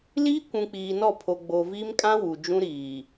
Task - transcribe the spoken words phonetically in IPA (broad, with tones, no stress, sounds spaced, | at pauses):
l iː˦ kʷ ũ˨ k͡p iː˨ n ɔ˦˨ pʰ o˨ ɡ͡b o˨ v iː˦ m kʼ ã˦ w u˨ d͡ʒ ũ˦ ɾ iː˨